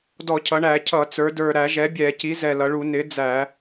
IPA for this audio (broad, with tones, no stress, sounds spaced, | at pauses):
d ɔ˧˩˧ cʰ ʌ˩˧ ɳ æ˧˩˧ cʰ ʌ˧˩˧ t͡s ə˞˩˧ d ə˞˨˩ ɾ æ˧˩˧ ʒ ɛ˩˥ bʲ ɛ˧˩˧ c i˩˥ z ɛ˨˩ l ʌ˩˧ ɭ u˧˩˧ n ɪ˩˥ d͡z æ˧˩˧